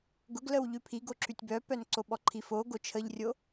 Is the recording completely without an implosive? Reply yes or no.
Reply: no